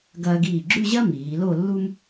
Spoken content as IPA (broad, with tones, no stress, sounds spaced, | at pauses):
ɡ ɐː˧ ɡ iː˧˩ ɡ͡ǁ ʉ˥˧ ʑ ɐ˥ m iː˩˧ l o˥˧ lː u˥ m